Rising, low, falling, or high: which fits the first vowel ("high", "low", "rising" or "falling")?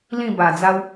falling